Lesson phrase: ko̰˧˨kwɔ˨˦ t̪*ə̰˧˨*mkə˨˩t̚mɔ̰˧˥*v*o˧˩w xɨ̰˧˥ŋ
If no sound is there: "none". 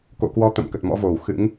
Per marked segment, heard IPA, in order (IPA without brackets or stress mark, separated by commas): ə̰˧˨, v